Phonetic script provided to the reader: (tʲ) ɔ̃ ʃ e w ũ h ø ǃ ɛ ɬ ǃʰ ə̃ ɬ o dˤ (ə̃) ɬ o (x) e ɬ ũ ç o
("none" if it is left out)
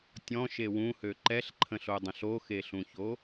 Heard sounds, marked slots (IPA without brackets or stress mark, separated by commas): tʲ, ə̃, x